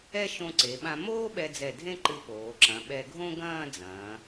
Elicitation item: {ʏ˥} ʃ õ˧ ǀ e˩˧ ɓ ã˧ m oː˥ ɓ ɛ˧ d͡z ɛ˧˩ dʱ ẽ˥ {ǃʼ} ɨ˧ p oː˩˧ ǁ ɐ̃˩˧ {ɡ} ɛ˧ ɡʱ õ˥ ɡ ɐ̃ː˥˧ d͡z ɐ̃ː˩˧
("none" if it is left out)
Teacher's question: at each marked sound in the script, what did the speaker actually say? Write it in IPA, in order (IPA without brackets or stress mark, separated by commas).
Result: ɛ˥, ǃ, ɓ